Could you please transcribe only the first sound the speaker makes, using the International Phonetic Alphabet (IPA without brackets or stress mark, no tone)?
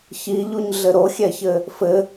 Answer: ç